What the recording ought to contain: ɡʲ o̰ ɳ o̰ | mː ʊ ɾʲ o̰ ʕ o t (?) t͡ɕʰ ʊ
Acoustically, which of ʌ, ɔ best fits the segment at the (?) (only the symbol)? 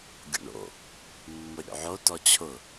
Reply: ɔ